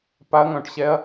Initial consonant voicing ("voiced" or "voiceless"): voiceless